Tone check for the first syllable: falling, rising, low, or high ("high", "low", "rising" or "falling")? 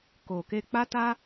low